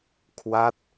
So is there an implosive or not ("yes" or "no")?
no